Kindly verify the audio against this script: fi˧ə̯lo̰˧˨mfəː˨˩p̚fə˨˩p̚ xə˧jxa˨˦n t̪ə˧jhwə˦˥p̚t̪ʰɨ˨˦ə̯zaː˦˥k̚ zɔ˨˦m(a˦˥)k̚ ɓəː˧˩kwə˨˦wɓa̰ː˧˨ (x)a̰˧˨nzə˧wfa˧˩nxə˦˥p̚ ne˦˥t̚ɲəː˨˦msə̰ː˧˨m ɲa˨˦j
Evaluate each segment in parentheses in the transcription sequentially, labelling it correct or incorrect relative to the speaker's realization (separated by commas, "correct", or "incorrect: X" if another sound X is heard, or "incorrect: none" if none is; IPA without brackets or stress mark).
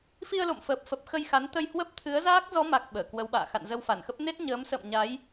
incorrect: a˨˩, correct